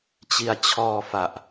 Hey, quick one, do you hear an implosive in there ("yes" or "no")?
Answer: no